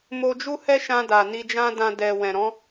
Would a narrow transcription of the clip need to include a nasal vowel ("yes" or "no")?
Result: yes